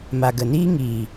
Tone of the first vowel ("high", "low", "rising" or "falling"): low